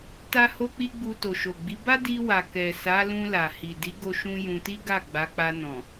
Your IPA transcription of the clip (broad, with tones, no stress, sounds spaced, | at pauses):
t a˦ h o˦ k͡p i˦ ɡ͡b u˧ t o˨ ʃ o˨ ɡ͡b i˨˦ b a˦ d i˧ w a˨ k ɛ˨ s a˨˦ l ũ˧ l a˨ h i˨ d i˨˦ ɡ o˧ ʃ ũ˧ j ũ˧ t i˦ ɡ a˦˨ ɡ͡b a˨˦ k͡p a˧ n ɔ̃˨